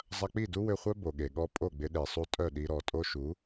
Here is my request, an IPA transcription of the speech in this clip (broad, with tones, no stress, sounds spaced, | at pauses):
zˤ ɐ˧ k͡p i˦˨ d u˦ w ʏ˧ χʷ œ˦ b o˨ ɠ e˨ ɠ ɔ˦ pʼ o˦˨ ɡ͡b ɪ˧ ɗ e˨ sˤ u˧ tʼ œ˦˨ ɗ i˧ ɾ ɔ˨ tʼ o˧ ʃ u˨˦